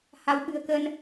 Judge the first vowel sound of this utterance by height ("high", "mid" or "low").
low